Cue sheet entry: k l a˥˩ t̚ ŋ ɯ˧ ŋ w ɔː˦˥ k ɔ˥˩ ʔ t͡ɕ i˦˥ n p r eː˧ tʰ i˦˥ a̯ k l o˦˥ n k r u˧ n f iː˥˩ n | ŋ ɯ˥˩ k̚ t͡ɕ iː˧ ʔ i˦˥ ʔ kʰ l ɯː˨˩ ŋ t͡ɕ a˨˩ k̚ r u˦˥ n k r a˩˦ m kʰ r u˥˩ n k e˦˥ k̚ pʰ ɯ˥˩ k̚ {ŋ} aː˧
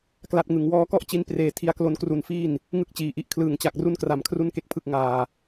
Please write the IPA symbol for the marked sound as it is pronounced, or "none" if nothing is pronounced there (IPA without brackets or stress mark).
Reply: ŋ